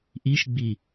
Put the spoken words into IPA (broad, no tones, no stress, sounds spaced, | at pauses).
ʔ i ʃ ɡ͡b i